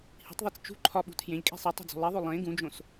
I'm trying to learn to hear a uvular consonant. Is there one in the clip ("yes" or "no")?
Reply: no